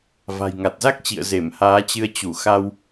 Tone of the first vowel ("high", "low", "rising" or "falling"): low